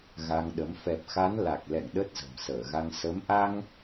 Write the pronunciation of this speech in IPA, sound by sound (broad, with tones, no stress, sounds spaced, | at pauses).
ɣ a˧ ŋ ɗ ə˨˦ m f ɛ˨˩ p̚ x a˨˦ n l a˨˩ k̚ l ɛ̰˧˨ ŋ ɗ ə˦˥ t̚ z ə̤˨˩ m s əː˧˩ ɣ a˧ ŋ s ə˨˦ m ʔ a˧ ŋ